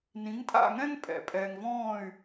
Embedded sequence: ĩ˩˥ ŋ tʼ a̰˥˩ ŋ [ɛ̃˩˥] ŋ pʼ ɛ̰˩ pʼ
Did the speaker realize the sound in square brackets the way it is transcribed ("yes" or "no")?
no